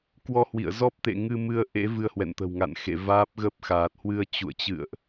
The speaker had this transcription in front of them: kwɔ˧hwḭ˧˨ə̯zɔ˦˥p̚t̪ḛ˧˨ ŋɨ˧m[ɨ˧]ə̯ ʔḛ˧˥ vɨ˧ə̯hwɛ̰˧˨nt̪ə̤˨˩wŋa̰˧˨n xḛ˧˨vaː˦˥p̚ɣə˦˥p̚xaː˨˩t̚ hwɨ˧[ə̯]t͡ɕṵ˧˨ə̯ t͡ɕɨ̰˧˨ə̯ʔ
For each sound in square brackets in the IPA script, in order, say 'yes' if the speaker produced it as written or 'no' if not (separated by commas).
yes, yes